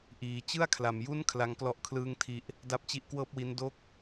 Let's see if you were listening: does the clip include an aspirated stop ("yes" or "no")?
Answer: yes